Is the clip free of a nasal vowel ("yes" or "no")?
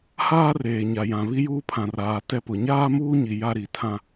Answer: no